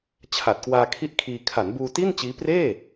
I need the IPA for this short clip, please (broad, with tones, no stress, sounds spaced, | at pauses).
t͡ɕʰ a˨˩ t̚ k w aː˧ kʰ i˥˩ ʔ kʰ iː˧ kʰ a˩˦ n b uː˧ t i˥˩ n t͡ɕ iː˦˥ p r eː˥˩